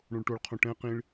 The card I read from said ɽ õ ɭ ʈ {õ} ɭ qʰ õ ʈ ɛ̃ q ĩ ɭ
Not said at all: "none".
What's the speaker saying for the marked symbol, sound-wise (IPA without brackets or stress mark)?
o